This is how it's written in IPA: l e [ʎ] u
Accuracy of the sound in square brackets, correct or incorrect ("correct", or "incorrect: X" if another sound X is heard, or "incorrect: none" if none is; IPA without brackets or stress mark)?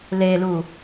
incorrect: l